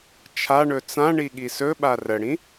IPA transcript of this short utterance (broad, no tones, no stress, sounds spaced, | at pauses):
t͡ʃʰ a ɳ ɵ t͡s ã ɳ i ɠ i s ɵ ɓ a r ə ɽ ĩ